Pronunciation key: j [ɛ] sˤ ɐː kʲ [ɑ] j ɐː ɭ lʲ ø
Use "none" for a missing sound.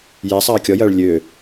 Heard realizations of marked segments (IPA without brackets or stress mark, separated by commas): ɛ, ɔ